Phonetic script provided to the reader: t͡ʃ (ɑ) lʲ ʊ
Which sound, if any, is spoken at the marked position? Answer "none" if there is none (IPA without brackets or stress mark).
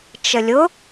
ə